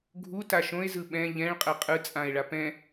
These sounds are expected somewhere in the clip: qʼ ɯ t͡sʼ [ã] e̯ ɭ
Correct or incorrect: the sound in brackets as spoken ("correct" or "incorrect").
correct